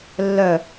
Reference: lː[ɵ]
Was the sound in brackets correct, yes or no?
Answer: no